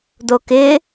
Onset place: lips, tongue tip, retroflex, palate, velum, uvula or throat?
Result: tongue tip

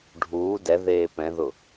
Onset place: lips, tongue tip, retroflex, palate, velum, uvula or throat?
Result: retroflex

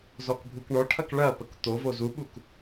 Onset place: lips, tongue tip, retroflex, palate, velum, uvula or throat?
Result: tongue tip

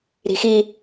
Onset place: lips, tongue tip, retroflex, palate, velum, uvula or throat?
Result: tongue tip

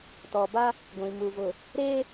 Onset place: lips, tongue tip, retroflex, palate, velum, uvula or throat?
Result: tongue tip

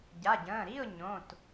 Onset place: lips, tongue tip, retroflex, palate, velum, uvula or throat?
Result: palate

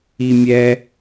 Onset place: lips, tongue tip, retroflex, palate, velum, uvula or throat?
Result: lips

